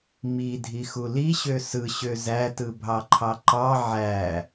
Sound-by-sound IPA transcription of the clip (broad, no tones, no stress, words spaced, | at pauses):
midʱixu liɕø sɯɕø zætɯbʱɑǃʰɑ ǃɑ ʕæ